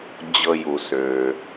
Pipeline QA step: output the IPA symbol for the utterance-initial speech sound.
d͡ʑ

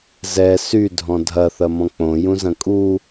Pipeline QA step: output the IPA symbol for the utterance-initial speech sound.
z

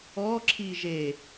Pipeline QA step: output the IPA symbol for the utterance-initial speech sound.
ɔ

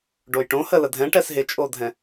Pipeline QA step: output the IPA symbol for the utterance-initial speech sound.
ɖ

